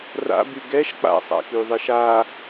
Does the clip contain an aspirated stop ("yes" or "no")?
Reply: no